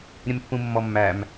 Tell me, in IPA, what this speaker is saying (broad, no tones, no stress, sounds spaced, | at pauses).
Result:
ɾʲ ə̃ m pː ũ mː ɔ mː æ m